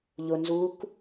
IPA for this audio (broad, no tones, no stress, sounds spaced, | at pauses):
ʎ ʊ n z u k